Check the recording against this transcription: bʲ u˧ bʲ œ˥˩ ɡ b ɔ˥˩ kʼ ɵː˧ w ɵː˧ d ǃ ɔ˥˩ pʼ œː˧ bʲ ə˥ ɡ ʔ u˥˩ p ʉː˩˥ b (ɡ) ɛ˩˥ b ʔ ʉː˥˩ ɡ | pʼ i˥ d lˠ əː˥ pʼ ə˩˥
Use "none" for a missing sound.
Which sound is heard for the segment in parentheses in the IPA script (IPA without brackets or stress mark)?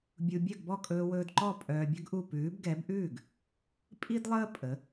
ɡ